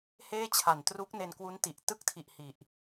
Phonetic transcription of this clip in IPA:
heː˥˩t͡ɕʰa˨˩n tru˦˥k̚ ne˧nkwu˦˥nti˨˩ʔ tɯ˦˥k̚tʰi˨˩ʔ hi˨˩ʔ

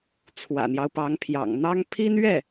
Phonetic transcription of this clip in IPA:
t͡sʰwä̰˨˩n̪jɑ˦ʊ̯pɑ˧˥ŋpʰjɑ̰˨˩ŋ n̪ɑ˥ŋ pʰi˥nɥɛ˥˩

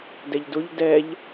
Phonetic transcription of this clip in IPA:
dɛʎdʊʎ dɛʎ

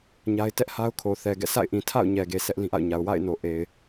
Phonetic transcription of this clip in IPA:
ɲa˦ɪ̯ tɛ˦ʔ ha˦ʊ̯kʰo˨ θɛ˨ɡɛ̰˦˨ sa̰˦˨ɪ̯ʔĩ˨tʰa̰˦˨ʊ̯ ɲɛ˨ɡe˨ sʰɛ˦ʔlĩ˦ʔa̰˦˨ʊ̯ɲa˨ʊ̯ wa̰˦˨ɪ̯no˨ʔe˨ɪ̯

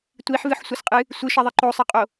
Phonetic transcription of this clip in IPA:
tʷiħvɨħsʷʌsqʼɨ | sʷɨʃʌðˤɨ ǃosˤʌqʼo

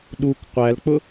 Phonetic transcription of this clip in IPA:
ɗuk qʷælk͡pʊ

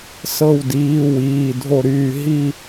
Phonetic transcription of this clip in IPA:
sɤ˦˨wdiː˩˧˩w iː˩˧˩dʱo˦˨ɾyː˦˨ ɦi˦˨

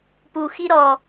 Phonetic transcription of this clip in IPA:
pu xiɾɔ

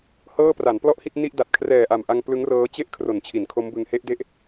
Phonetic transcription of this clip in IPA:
hɤː˥˩pra˩˦n plɔ˥˩ʔhi˥˩t̚ni˥˩ʔ da˨˩t̚kʰrɛː˨˩ʔa˨˩mʔa˧ŋ plɯ˦˥ŋrɤː˦˥ t͡ɕe˥˩ʔ kʰro˨˩nt͡ɕʰi˩˦nkʰo˦˥mbɯ˧ŋ he˦˥ʔde˦˥ʔ

